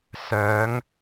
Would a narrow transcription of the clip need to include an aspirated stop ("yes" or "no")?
no